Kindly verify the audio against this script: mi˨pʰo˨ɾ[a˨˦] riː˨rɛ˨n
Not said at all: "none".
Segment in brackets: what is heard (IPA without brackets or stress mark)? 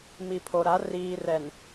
a˨˦